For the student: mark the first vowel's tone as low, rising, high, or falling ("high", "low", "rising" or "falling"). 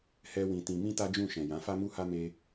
high